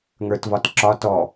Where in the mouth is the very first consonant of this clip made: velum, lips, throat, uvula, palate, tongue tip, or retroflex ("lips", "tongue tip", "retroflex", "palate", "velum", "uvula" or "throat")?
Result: velum